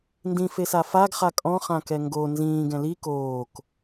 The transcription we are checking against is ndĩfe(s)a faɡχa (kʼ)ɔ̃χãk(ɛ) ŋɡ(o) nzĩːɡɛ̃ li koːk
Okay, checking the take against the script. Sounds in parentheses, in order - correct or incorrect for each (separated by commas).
correct, correct, correct, correct